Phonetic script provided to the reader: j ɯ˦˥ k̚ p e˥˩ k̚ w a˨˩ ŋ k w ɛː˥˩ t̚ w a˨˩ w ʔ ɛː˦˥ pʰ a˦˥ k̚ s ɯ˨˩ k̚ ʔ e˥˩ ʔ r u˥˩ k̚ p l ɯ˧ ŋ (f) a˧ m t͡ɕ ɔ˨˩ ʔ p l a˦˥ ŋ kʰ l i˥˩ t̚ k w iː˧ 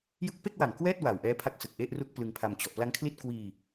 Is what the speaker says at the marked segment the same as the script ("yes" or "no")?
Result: no